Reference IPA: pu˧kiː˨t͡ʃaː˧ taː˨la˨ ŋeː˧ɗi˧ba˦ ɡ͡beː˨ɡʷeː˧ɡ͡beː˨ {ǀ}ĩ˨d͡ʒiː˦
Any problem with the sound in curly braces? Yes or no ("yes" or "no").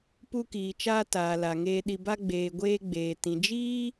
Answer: yes